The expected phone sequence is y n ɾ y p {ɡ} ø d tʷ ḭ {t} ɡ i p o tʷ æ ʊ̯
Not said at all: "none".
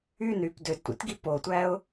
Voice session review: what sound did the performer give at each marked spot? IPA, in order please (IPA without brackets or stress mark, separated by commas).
d, t